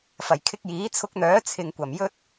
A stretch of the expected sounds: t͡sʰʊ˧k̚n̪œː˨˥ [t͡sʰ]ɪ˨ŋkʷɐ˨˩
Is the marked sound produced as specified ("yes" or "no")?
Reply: yes